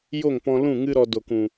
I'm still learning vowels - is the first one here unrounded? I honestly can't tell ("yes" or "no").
no